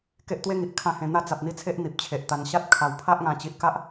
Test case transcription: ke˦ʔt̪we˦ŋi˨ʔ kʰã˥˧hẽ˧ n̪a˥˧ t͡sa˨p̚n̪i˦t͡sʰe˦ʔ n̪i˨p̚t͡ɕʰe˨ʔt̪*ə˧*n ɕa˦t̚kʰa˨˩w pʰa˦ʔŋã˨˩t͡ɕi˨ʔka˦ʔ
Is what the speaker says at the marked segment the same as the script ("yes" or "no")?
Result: no